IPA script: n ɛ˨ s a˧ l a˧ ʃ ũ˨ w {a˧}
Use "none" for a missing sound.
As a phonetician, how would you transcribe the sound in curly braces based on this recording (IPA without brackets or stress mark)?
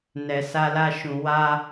a˧